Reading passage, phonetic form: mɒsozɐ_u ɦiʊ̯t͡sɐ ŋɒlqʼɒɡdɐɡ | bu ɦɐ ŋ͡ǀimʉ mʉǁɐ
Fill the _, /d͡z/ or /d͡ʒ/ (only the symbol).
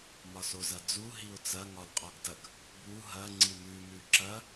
d͡z